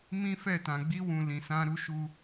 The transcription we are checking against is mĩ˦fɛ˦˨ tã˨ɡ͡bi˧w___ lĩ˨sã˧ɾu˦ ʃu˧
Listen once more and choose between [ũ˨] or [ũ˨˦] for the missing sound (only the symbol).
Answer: ũ˨